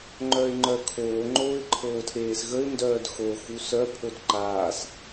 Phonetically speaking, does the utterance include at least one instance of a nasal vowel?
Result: no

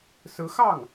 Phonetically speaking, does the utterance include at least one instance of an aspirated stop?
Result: no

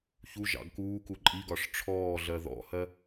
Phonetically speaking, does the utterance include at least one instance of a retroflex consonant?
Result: yes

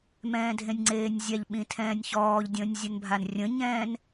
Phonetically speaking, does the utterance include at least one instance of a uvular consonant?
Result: no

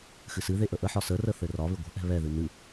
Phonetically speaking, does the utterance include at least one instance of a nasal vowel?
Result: no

